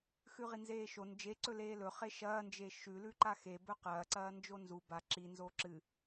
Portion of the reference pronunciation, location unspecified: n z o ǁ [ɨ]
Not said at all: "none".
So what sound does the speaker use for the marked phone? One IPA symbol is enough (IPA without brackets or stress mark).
ɨ